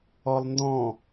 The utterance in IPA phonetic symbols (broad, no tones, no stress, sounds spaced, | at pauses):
ɔ lˠ n d ɔ̃